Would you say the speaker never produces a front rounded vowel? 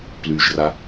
no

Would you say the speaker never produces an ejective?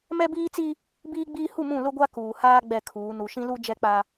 yes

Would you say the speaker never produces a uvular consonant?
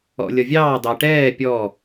yes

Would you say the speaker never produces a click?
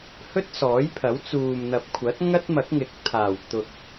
yes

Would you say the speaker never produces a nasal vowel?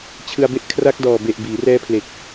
yes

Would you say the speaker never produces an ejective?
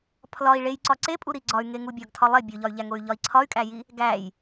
no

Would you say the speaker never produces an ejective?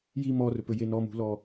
yes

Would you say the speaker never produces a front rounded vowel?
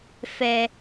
yes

